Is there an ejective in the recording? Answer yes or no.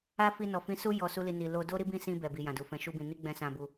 no